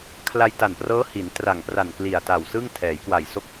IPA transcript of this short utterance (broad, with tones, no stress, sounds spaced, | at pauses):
kʰ l a˧ j t a˨˩ n p r ɤː˦˥ h i˩˦ n t r a˨˩ ŋ p r a˨˩ n k l i˨˩ a̯ t a˨˩ w s ɯ˥˩ ŋ tʰ ɛː˩˦ j k w a˨˩ j s o˦˥ k̚